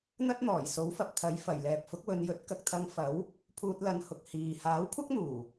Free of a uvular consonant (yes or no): yes